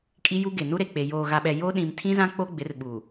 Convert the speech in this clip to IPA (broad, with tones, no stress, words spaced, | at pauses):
kʼi˦ju˦ ɡe˨ nu˦ɾe˨k͡pe˨ joː˨ɣa˨ɓɛ˨ jo˦ ɗĩ˨mtʰĩ˦zã˦ k͡po˦ɡ͡bɪ˨˦r ɓu˨